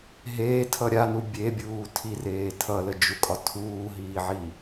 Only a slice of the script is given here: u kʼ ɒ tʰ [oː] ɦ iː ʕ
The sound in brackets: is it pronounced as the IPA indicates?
no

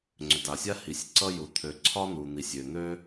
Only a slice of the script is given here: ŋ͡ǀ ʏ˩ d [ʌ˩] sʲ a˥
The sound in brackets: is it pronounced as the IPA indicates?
no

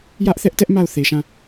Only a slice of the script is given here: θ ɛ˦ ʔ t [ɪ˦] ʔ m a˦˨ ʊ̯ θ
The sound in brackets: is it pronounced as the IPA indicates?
no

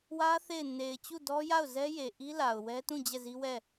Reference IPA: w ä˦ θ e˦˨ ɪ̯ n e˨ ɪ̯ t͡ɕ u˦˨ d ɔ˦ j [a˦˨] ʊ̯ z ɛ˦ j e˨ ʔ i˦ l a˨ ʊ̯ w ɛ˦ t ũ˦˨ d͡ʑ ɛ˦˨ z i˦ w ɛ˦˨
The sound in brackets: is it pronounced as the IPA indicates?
yes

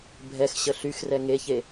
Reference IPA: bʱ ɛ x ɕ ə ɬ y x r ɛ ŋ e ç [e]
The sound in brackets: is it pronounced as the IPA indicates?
yes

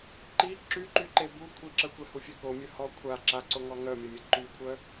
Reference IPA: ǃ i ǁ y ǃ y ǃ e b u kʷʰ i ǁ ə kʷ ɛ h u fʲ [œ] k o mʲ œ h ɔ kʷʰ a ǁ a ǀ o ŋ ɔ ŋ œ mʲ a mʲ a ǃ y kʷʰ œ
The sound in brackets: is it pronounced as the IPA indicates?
no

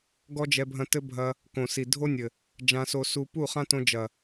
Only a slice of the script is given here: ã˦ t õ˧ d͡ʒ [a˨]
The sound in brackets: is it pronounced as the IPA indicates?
no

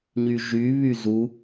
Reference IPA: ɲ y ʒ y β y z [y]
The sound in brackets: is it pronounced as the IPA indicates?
no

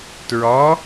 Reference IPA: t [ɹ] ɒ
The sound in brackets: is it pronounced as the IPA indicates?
yes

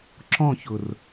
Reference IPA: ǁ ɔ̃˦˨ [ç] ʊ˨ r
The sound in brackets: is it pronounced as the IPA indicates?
yes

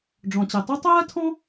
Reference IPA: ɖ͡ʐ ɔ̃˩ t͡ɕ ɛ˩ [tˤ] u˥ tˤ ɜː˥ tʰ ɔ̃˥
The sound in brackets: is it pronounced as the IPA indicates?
yes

